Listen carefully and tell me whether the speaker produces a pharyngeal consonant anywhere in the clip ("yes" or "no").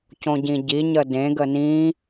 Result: no